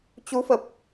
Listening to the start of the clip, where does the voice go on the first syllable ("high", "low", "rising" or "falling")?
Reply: rising